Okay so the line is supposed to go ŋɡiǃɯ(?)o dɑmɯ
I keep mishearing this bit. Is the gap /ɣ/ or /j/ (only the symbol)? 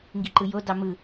j